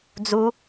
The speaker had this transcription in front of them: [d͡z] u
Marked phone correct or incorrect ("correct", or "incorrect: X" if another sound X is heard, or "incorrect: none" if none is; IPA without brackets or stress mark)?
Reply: correct